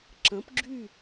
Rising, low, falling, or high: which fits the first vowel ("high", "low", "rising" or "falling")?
rising